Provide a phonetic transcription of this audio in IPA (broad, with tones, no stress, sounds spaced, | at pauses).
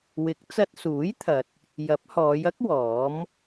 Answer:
w ɪ˨˥ k̚ t͡s ɐ˧ t̚ s uː˨˥ j t̪ʰ ɐ˨ t̚ | j ɐ˨˥ p̚ h ɔː˨˧ j ɐ˥ k̚ w ɔː˨˥ m